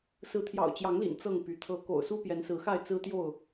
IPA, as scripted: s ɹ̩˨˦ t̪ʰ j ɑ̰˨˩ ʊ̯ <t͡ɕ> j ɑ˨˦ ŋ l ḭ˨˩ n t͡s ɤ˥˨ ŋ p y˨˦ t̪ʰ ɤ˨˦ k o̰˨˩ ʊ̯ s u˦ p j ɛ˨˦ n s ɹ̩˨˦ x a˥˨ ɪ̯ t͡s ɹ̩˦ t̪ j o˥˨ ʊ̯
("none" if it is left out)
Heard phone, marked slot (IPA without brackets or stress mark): t͡ɕ